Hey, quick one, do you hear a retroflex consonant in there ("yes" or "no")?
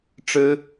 yes